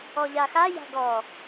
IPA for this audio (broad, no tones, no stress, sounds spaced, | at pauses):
ɔ ʎ a x a j a̤ ɡ ɔ